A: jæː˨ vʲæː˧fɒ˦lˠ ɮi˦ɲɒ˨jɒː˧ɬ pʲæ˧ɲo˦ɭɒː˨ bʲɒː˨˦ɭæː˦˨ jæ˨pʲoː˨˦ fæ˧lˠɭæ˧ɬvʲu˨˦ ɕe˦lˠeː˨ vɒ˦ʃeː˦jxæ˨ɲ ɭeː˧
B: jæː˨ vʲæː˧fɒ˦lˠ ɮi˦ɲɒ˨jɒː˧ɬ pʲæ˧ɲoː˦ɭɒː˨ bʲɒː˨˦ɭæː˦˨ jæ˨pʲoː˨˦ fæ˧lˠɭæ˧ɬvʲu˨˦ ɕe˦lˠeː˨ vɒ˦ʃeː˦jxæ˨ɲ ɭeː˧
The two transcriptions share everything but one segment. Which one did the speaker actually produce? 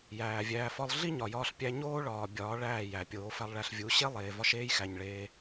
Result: B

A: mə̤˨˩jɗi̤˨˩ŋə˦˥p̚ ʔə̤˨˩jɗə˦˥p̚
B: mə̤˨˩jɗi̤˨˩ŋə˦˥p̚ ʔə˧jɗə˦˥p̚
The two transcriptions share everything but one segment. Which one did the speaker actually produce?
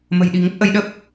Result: B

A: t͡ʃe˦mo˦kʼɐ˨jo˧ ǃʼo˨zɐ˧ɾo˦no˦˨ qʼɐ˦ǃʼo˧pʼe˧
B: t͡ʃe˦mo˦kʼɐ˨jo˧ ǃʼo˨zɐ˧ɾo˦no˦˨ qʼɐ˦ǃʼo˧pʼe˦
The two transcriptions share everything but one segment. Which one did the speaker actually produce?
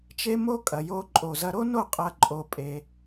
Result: A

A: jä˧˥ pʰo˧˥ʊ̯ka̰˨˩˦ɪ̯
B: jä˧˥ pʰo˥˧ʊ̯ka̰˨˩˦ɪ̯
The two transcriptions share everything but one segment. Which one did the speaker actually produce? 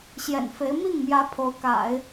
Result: A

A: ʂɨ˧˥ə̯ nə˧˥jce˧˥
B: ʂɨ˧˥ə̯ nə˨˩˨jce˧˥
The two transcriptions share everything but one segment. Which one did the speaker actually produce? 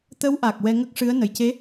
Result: B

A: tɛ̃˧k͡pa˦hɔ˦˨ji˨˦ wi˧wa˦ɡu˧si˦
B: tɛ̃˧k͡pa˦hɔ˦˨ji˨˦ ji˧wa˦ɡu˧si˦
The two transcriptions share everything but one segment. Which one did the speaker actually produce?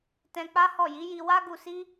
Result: B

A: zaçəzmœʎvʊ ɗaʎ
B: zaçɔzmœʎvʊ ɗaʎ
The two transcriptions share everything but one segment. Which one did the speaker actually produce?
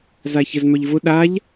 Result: A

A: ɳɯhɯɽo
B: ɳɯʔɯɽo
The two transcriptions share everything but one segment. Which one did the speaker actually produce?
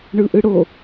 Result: B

